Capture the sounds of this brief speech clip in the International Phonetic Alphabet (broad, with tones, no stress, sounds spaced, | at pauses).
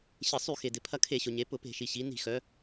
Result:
ɕ ɪ˧˩˧ sˤ y˧˩˧ x e˩ d ɪ˩ pʰ ɐ˧ kʰ e˧˩˧ ɕ ʊ˩ ɲ e˩˧ p ʊ˧˩˧ p e̤˧˩˧ ʃ i˩ ɕ i˩˧ n i̤˧˩˧ x œ˩˧